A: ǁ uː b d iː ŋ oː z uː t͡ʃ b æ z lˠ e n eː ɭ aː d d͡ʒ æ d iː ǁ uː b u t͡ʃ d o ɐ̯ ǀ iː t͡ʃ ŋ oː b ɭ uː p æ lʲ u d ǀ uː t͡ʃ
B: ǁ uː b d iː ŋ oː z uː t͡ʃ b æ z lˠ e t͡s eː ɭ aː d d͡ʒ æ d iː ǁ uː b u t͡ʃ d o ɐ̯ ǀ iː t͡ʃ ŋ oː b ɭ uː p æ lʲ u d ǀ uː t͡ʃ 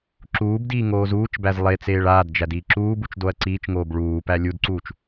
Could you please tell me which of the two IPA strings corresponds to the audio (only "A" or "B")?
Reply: B